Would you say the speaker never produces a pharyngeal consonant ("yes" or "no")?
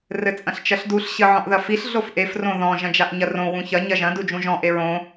no